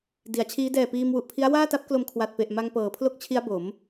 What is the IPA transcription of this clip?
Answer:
di˩˦a̯t͡ɕʰiː˦˥ dɛː˨˩ piː˧mwu˨˩ʔpʰi˦˥a̯ waː˥˩ta˦˥p̚klo˧m kʰwa˨˩t̚pe˨˩ʔ ma˧ŋpɤː˩˦pʰlo˦˥k̚t͡ɕʰi˦˥a̯ bo˩˦m

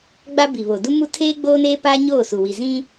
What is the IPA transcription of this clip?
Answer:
ɡ͡ba˦bi˨ βo˨ du˦mu˦ tʰeː˦ ɡ͡boː˦neː˦paː˦ ɲoː˦˨su˨ wi˨zĩ˦

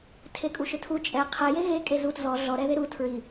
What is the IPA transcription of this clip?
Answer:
tʰekʼuʃʏtʰu t͡ʃʼɛ qʰɛje ɣe kʼezut zɔ ɮɔ ɾɛðeɾu tʰɹi

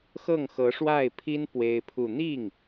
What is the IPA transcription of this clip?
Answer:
xɤ˥˩ŋxɤ˧˥ʂwa˥˩ɪ̯pʰi˥n pwe˥ɪ̯pʰu˥˧ n̪i˥˩ŋ

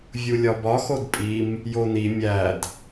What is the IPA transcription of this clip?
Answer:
vʲulʲɒbɒ xodpʼim | joni mʲæd

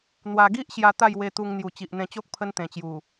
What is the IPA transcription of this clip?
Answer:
n̪wa˧ɡi˦ʔɕja˧ t̪a˥˧jwe˧t̪u˧ŋ n̪ju˨˩t͡ɕi˨ʔn̪ẽ˧t͡ɕo˦k̚ pʰə˦nt̪ẽ˨˩t͡ɕju˨˩

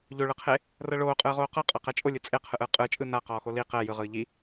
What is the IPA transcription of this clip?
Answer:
ʎoɭɯqʰe | rɤɭoːqʼɯːʁoː qɤqʼɤ qɛt͡ʃʼolʲɯ t͡sʼeqʰɯʔɯː qʼɯːt͡ʃʼɯː na qɔːxoli qɛ jɯʁɯː ʎi

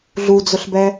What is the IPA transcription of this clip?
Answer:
ɮud͡zʊɬbɛ

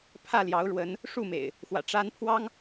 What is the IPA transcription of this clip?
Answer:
pʰä˥˨ljɑ˨˦ʊ̯ɻwə˨˦n | ʂu˥˨mḛ˨˩ɪ̯ | xwä̰˨˩ ʈ͡ʂa˦n pʰwɑ˦ŋ

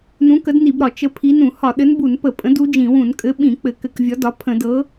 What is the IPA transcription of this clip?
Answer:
nũ˨˥kə˨˥dni˧˩˧bɾɒ˧˩˧ t͡ʃə˨˥ pʰi˨˥nũ˧˩˧ hɒ˧˩˧ɗɘ˨˥nbu˧˩˧npə˧˩˧ pʼə̃˨˥d u˨˥d͡ʒĩ˧˩˧wũ˧˩˧n kʼɘ˨˥ɓĩ˧˩˧ k͡pɘ˧˩˧kɘ˧˩˧kvʲɒ˨˥ dɒ˨˥ pʰə̃˧˩˧dɤ˨˥

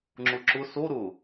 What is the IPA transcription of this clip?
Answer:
ŋ͡ǁʊǁʊ so ɾʊ

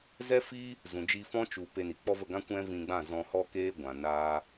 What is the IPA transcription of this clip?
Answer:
zɛ˦fiː˦ | zũ˨d͡ʒi˧fɔ̃˦ t͡ʃu˨ pe˧ni˨k͡pɔ˦və˦˨ ɡã˦kʷɛ̃˦vĩ˧ɡ͡bã˦˨ zɔ̃˧hɔ˦keː˦ɡʷã˨ naː˦

